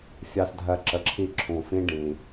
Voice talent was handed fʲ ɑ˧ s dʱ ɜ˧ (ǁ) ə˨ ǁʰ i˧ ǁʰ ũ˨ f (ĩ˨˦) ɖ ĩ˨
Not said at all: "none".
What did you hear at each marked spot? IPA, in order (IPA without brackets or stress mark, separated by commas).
ǁ, ĩ˦